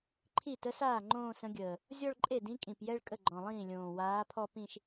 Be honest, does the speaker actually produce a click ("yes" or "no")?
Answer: yes